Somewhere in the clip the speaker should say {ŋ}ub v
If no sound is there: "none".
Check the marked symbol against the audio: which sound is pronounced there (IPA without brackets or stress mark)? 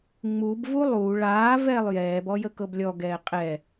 ŋ͡m